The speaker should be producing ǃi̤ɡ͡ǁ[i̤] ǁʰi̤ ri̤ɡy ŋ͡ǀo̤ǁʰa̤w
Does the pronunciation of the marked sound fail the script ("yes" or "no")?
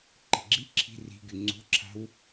yes